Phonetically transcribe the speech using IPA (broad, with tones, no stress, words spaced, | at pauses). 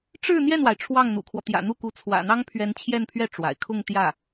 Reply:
ʈ͡ʂɻ̩˥˧n̪jɛ˥˩nwa˩ɪ̯ ʈ͡ʂʰwɑ˥˩ŋn̪ṵ˨˩kʰwɔ˦ t̪jä̰˨˩n̪u˥˩ ku˧˥ t͡sʰwä̰˨˩n̪ɑ˥ŋpʰɥɛ˧˥n t͡ɕʰjɛ˥˧npʰɥɛ˥˩ ʈ͡ʂwa̰˨˩ɪ̯ kʰʊ˥˧ŋ t̪jä˥˩